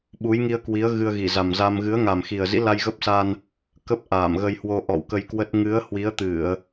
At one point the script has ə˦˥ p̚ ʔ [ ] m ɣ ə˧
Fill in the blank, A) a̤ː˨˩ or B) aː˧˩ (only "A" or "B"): B